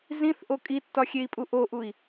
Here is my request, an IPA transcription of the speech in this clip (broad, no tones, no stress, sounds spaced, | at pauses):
z ĩ θ ʔ o kʼ i tː ɒ xʲ e i̯ pʼ u ʔ o ʔ u i̯